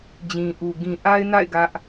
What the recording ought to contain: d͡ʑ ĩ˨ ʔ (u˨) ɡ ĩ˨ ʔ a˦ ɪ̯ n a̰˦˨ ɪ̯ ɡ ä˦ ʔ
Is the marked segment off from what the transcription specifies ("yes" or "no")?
no